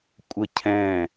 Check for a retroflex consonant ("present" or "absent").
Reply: absent